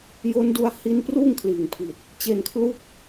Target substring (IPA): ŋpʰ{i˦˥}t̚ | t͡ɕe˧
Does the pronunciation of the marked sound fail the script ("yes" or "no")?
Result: yes